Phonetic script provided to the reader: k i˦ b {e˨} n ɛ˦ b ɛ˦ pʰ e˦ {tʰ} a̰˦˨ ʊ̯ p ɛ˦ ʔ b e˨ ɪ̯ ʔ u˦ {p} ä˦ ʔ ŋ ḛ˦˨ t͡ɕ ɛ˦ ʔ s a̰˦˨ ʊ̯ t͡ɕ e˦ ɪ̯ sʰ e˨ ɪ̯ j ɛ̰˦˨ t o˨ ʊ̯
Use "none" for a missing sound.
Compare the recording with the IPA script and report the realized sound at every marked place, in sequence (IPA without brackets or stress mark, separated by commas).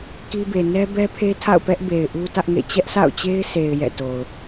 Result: e˨, tʰ, t